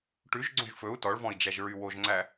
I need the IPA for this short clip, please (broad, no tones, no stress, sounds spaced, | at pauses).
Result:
ʈ ʉ ʒ ɡ͡ǀ õ ʒ f ɵ u̯ t ɔ ɭ v ɔ̃ i̯ d͡ʒ æ ʒ ɹ y w o ʒ ŋ͡ǀ æ